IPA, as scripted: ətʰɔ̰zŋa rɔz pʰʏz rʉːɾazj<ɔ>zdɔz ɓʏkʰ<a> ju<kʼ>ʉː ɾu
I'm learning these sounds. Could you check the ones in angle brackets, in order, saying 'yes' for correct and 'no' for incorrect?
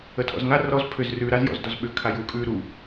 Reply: no, yes, yes

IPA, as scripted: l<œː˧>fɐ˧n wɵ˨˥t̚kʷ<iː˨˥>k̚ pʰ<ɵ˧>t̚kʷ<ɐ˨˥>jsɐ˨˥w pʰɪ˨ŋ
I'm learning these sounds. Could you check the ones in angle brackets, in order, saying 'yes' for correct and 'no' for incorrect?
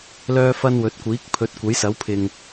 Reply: yes, yes, no, yes

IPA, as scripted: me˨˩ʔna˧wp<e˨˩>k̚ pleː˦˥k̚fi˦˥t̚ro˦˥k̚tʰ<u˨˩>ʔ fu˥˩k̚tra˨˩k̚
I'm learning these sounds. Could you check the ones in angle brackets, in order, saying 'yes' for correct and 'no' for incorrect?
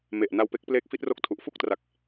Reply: no, yes

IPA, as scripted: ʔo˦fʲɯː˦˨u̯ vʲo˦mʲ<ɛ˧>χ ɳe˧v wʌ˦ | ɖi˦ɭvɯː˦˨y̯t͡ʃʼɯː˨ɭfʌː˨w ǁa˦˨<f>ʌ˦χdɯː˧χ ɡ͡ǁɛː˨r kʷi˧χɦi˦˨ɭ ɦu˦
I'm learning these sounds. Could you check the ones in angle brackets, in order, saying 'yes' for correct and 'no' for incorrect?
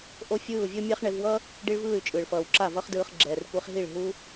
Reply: no, no

